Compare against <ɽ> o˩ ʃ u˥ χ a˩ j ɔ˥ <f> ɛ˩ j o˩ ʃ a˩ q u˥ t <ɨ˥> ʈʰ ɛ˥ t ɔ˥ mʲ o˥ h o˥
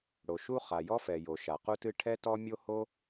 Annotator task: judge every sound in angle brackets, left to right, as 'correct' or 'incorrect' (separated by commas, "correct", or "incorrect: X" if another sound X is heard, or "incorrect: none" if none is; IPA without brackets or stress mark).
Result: correct, correct, correct